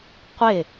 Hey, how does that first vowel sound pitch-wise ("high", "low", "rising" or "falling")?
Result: falling